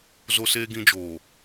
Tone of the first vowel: high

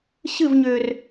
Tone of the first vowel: falling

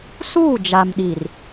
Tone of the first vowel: falling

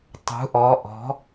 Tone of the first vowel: rising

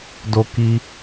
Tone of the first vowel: high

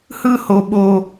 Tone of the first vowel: high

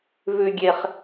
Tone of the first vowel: low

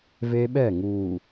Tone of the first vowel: high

